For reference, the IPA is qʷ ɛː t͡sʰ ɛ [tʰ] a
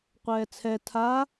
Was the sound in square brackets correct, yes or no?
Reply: yes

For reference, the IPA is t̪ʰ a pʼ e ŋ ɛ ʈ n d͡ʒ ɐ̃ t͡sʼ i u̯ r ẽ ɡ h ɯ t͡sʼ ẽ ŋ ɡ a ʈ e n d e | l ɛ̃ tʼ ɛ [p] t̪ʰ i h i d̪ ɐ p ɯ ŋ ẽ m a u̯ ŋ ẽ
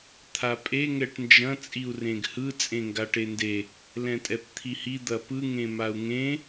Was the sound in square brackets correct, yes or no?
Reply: yes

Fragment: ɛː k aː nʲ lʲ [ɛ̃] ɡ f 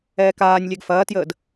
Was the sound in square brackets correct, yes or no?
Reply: no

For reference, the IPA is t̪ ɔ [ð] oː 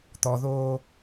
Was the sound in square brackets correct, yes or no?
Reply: yes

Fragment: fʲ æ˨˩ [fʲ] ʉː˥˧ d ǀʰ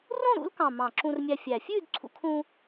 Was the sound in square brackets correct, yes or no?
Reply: yes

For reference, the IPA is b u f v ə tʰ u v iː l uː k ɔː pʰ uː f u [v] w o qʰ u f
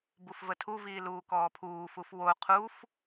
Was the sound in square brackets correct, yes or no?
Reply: no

